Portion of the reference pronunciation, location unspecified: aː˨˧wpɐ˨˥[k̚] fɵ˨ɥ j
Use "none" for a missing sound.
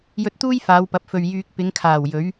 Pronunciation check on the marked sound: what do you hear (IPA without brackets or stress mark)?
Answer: p̚